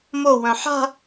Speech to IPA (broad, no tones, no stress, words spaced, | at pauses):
mowœ̃ ħa̤